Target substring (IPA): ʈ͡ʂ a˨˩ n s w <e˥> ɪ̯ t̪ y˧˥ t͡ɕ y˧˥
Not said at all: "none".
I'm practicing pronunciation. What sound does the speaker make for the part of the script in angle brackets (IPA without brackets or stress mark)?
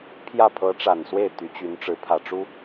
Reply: e˥˩